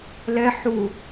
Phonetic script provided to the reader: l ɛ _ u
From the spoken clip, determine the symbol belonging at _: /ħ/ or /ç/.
ħ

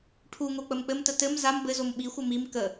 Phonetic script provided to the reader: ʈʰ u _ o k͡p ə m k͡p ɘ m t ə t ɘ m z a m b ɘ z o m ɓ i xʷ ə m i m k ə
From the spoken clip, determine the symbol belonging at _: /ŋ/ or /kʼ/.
ŋ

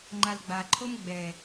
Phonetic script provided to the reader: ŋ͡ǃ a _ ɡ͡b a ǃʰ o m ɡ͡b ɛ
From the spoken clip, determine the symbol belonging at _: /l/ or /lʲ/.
l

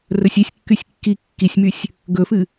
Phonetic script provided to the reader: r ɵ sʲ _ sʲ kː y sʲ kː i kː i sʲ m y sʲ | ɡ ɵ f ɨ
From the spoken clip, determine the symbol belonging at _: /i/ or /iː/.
i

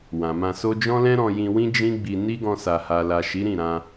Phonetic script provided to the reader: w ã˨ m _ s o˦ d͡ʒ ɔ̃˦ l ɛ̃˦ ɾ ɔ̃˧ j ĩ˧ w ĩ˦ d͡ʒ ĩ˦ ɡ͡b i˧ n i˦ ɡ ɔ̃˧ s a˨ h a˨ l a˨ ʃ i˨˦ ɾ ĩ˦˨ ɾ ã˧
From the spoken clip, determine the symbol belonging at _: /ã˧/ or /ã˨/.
ã˧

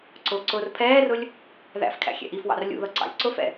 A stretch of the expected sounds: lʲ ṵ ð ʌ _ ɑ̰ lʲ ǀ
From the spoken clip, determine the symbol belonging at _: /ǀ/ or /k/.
ǀ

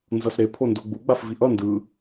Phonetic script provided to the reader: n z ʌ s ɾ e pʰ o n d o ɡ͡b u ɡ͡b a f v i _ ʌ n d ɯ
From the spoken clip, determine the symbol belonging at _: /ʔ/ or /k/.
ʔ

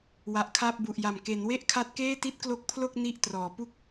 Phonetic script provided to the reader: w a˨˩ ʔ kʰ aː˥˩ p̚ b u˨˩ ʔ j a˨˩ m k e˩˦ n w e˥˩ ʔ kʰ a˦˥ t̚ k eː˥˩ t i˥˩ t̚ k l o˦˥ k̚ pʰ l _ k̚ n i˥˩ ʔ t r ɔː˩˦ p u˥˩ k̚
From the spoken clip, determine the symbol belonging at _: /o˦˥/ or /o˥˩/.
o˥˩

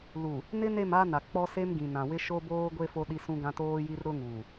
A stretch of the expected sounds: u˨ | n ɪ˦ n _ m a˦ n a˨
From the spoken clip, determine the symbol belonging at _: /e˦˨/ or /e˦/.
e˦˨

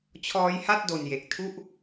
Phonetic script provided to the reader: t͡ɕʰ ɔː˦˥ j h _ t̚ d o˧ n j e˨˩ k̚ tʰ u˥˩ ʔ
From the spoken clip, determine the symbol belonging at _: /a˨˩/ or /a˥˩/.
a˥˩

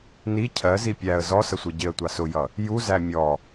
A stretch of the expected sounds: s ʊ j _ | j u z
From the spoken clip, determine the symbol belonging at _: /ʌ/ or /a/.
ʌ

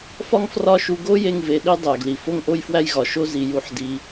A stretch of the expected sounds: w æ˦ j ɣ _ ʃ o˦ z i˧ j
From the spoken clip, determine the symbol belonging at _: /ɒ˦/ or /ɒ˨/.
ɒ˨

